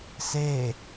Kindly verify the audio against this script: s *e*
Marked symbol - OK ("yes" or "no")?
yes